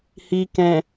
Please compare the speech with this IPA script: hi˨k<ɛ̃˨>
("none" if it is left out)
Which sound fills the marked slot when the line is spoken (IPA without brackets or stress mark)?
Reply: ɛ̃˨